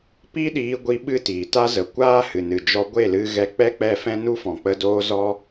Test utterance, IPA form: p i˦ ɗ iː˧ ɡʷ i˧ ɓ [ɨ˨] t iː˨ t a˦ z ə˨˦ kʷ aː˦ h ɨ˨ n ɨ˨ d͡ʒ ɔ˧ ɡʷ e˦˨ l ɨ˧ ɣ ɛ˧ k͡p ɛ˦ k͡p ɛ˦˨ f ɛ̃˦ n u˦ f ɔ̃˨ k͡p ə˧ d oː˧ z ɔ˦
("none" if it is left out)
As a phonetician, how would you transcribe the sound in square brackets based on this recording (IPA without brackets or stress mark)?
ɨ˦